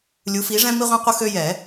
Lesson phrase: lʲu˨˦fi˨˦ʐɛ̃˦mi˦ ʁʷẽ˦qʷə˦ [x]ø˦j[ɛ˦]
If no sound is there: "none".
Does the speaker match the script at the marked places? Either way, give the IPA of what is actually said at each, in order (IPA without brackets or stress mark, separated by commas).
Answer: x, ɛ˨˩˦